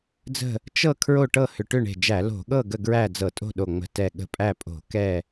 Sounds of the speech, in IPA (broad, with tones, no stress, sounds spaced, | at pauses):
d͡z ə̤˥˨ | t͡ʃ ɤ˥˨ kʰ ɹ o˥˨ ʈ ɤ˥˨ h ʏ˧˩ ʈ ʏ˥˨ ɳ e̤˧˩ d͡ʒ æ˧˩˧ l o̤˧˩˧ ɠ ɤ˥˨ ɡ ə˥˨ ɡ ɹ æ˥˨ d͡z ɤ˧˩˧ tʼ o̤˥˨ ɗ o˧˩ ŋ͡m ə̤˧˩ t ɛ˧˩ ɠ ə̤˧˩˧ pʼ æ˥˨ pʼ o̤˧˩˧ k ɛ˥˨